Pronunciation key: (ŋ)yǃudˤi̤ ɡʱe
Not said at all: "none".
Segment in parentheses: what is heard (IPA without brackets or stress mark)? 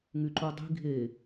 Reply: ŋ